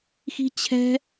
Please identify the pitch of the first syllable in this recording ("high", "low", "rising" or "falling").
high